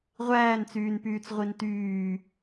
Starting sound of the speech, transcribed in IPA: ʁʷ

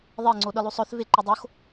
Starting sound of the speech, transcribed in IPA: ðˤ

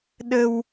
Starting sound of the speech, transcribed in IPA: ɗ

